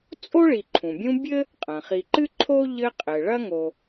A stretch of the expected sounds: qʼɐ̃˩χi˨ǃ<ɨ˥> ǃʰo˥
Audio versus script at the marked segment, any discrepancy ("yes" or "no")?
no